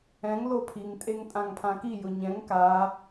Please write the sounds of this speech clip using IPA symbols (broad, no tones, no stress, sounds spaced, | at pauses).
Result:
ɛ̃ ŋ l o pʰ i ŋ tʼ e ŋ tʼ ã ŋ pʰ ã k i j ʊ ɲ ɛ̃ ŋ k a